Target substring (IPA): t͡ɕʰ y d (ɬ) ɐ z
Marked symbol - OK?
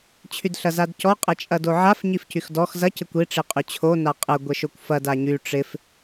yes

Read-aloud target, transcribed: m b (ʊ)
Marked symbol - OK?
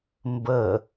no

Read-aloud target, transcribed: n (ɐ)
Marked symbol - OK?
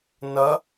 yes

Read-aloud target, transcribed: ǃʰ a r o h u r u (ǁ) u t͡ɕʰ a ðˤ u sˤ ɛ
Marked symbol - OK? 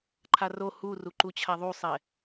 no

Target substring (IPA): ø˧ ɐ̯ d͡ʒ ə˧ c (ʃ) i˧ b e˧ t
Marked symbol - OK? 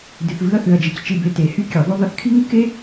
no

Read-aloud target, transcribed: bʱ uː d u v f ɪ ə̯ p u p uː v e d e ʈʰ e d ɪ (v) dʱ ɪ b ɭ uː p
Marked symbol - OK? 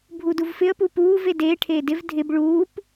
yes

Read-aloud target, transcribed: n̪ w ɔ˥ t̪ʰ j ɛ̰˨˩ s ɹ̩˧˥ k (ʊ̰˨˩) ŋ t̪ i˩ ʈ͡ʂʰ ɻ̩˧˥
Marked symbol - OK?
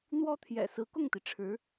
no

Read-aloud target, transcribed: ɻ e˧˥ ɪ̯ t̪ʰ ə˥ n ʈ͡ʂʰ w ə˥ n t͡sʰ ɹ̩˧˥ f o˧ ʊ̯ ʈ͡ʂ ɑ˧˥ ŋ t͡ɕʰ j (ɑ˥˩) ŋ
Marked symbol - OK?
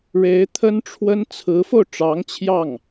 yes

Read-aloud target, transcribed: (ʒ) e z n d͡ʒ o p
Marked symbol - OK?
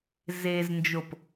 no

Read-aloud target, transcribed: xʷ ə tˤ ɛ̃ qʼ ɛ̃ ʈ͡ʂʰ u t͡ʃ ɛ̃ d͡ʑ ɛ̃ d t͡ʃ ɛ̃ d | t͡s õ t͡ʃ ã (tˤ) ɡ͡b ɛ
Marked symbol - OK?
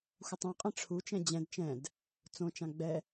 no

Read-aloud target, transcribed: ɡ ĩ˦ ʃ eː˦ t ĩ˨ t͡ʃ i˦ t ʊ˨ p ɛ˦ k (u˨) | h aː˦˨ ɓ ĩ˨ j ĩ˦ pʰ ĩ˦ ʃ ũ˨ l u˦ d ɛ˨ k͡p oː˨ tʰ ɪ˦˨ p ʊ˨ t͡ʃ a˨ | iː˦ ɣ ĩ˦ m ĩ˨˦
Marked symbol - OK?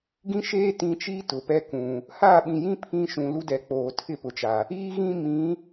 no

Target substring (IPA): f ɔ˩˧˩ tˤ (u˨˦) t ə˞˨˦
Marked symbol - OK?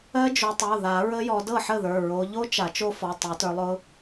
no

